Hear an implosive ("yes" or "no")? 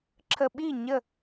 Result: yes